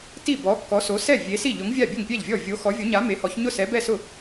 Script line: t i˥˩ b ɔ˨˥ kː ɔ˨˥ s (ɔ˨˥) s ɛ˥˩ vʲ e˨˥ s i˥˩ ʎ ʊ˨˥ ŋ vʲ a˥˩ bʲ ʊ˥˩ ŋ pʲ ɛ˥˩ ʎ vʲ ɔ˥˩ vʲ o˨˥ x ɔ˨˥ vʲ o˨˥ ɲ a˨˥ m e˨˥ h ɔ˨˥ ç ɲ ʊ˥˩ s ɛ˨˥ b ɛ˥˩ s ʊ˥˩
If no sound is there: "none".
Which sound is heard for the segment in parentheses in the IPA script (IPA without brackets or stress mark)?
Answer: o˨˥